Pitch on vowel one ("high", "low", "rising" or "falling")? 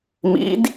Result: rising